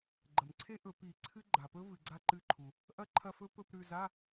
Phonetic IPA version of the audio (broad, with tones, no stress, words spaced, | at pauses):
ɡ͡ǃɐ˩mǀʰe˦˥ ʔɵ˧˩˧pi˧˩˧ǀʰɨ˦˥ ɡ͡ǃa˩pɵ˦˥ vɨ˩ɡ͡ǀa˦˨ ǃɨ˦˨ǃʰu˩ | ʔɐ˦˥ǃʰɐ˦˨fɵ˦˥pɵ˧˥˧p ɾʉ˦˨za˧˥˧